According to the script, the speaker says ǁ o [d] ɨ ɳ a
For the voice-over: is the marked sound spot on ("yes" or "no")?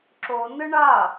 no